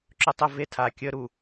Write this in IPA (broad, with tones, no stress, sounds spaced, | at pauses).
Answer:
ǁ ɵ˦ tˤ ə˦ v e˦ tʰ a˨ kʲ ə˦ ɾ u˨